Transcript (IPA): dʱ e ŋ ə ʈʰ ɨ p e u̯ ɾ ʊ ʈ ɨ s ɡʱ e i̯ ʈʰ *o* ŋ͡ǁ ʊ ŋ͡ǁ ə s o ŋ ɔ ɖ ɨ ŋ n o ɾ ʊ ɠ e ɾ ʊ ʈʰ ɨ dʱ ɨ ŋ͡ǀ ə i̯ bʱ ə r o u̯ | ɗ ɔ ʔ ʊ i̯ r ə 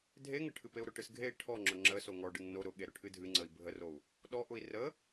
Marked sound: incorrect: ɔ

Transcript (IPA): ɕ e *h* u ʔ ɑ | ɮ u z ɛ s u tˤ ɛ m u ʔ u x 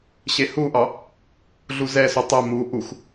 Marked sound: correct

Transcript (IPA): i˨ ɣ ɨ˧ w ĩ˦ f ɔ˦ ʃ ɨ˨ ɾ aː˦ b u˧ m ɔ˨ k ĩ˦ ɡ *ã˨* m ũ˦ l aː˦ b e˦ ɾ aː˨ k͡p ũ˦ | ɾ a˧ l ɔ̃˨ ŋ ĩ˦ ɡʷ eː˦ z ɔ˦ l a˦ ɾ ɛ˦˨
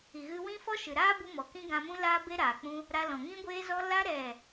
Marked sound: incorrect: ã˧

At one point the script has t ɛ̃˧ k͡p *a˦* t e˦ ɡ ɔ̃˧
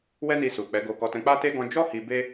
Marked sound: correct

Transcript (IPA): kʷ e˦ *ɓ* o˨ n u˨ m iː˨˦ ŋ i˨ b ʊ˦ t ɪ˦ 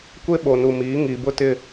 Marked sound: correct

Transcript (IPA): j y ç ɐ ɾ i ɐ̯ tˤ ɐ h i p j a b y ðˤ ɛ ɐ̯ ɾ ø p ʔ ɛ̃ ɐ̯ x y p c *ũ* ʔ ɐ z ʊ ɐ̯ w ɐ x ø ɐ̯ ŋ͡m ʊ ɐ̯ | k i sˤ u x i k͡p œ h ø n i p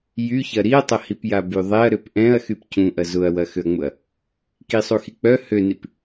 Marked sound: correct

